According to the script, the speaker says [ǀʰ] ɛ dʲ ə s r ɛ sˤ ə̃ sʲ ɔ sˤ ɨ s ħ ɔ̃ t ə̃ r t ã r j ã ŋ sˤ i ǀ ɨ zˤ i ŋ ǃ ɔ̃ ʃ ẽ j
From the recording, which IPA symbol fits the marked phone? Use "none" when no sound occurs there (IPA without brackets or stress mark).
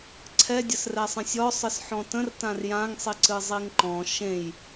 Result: ǀʰ